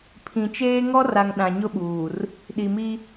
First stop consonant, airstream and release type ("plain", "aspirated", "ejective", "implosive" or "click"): aspirated